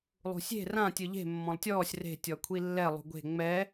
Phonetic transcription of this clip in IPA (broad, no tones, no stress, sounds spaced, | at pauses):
lˠ ṳ sʲ e̤ r ã tʲ ɯ ʎ e̤ mː ɔ̃ lˠ tʲ ɔː sʲ r e̤ tʲ ɔ kʷʰ i lː ɛ lˠ ṳ ɡʷ e̤ ŋ͡m ɛ